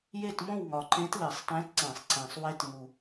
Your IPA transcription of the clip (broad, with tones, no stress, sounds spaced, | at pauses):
j e˥˨ t m õ˥˨ w ŋ ɒ˨˩ ǃ ẽ˧˥ t l e˨˩˦ sˤ t æ̃˧˥ t ǀ ẽ˨˩˦ sˤ ǀ æ̃˨˩ sˤ w e˧˥ t ŋ u˨˩